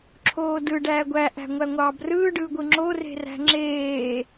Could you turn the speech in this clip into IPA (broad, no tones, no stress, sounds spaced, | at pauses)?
ǁʰ oː d ɯ ɖ æː ɡʷ æ ʔ æ̤ ŋʷ æ ŋʷ ɑː b r ɯː ɖ ɯː ɡʷ ɯ ŋ͡ǁ o r e̤ r æ̤ ŋ͡ǁ eː